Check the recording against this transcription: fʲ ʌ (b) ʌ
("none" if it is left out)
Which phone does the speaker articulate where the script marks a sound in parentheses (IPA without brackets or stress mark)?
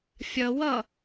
w